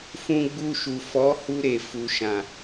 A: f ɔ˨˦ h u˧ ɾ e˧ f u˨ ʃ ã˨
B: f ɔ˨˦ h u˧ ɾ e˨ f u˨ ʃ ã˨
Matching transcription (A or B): B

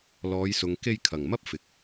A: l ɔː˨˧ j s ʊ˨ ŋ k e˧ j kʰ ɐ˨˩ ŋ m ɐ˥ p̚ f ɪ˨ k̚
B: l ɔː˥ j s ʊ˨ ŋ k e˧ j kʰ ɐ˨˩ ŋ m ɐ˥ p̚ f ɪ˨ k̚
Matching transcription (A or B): A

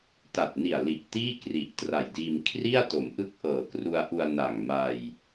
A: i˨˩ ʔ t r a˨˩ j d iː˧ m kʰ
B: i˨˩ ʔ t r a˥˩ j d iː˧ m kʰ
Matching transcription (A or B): A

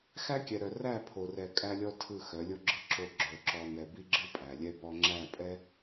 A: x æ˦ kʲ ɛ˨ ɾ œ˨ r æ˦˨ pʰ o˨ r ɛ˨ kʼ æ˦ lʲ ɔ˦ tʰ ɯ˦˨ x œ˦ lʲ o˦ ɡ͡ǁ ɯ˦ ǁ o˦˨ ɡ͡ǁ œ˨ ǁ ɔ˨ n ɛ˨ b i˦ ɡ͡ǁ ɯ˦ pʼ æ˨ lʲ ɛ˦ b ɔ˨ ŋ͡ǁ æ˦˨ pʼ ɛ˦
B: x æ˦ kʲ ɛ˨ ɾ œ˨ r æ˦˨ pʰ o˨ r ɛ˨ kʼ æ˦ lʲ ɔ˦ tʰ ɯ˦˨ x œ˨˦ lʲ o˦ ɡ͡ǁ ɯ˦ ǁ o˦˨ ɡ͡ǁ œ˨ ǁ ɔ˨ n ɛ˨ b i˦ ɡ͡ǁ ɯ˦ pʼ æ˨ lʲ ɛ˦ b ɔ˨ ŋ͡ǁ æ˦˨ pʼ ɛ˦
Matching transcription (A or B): B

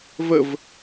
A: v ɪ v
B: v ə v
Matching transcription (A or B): B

